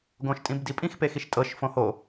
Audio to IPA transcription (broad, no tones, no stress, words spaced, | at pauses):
ɡõʃtʼĩbdipʼĩx pexiʃtʼɤʃ fõho